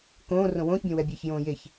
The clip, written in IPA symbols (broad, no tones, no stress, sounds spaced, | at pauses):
k õː r õ w õː ç bʲ õ w ɛ bʲ ɛː ç j õː j e ç